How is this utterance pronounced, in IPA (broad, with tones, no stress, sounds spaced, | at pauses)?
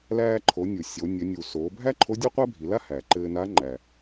l æː˧ ǃʰ o˩˧ nʲ u˩ sʲ o˩˧ nʲ ɘ˩˧ nʲ u˩ s oː˩˧ bʱ æ˥ ǃʰ o˧˥ dʲ o˥ qʷ æ˥ bʱ i˩˧ l a˥ h æː˩ ǃ ɘː˧ n a˧˥ ŋ͡ǃ æ˩